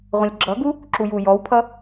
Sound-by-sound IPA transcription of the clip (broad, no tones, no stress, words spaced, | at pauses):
ʁʷə̃lʲɡ͡ǁʌɡu | ǁujujɔwpʰʌ